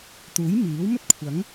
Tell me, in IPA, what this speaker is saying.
t̪ uː˨˥ j m iː˨˥ w m ɵ˥ t̚ kʷʰ ɐ˨˥ ŋ

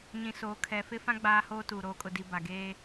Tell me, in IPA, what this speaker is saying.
ɲ ĩ˨ s oː˨ kʰ ɛ˨ f ɪ˦ f ã˦ ɡ͡b aː˦ h oː˦ t uː˨ ɾ oː˨ kʼ ʊ˨ d i˨ b a˨ ɡ eː˦

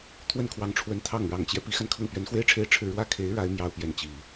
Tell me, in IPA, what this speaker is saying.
t̪ʰ w ə˥˩ n kʰ w ɑ˧˥ ŋ ʈ͡ʂʰ w ə˧˥ n t̪ʰ ɑ˥˩ ŋ ɻ ɑ˨˩ ŋ t͡ɕ j ɛ˦ p i˧˥ x a˧ n kʰ ɤ˥˩ ŋ p ɥ ɛ˧˥ n x w e˥ ɪ̯ ʈ͡ʂʰ e˥ ɪ̯ ʈ͡ʂʰ ɻ̩˥˧ ɻ w ä˥˩ kʰ e˧˥ ɪ̯ ɻ a˧˥ ɪ̯ m j ɑ˥ ʊ̯ p j ɛ˧˥ n t͡ɕ i˨˩˦

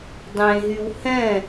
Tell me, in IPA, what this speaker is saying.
dˤ ẽ ɦ y w h ɛ̃

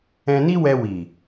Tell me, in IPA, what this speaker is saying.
ɛ̃˧ n i˦ w ɛ˧ w i˨

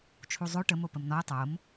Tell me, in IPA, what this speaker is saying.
t͡ʃʰ u zˤ o ʈ ə m o p ə m n ɔ ə̯ tˤ o m

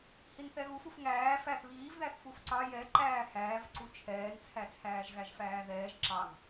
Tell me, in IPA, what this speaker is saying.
h i n θ ɛ ɣ u f u f ŋ æː f æ θ β iː v ð æ θ f u f ǀ ɑ j ɛ ǃ æː h æː v ǀ u t͡ʃʰ ɛː n t͡sʰ æ t͡sʰ æː ʒ ɣ æ ʒ f æː ð ɛː ʒ ǁ ɑ ŋ

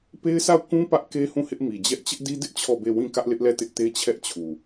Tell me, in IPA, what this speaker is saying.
p e˦ ɪ̯ s a˦˨ ʊ̯ k ũ˦ p ä˦ ʔ k e˦ h ũ˦˨ h ɪ˦ ʔ m i˨ d͡ʑ ɛ˦ ʔ t͡ɕ ɪ˦ ʔ d i˦ d ɪ˦ ʔ t͡ɕʰ ɔ˦˨ b e˦˨ w ĩ˦˨ k ä˦ ʔ l ɪ˦ ʔ l ɛ˦˨ t ɪ˦ ʔ t e˦ t͡ɕʰ ɛ˦ ʔ t͡ɕʰ u˨

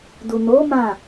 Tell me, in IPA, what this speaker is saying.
d u˨ n o˨˦ m ã˦˨

